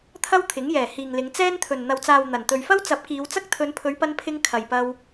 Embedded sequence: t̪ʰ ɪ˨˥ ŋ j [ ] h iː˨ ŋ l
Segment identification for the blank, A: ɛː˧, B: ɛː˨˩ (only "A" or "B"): B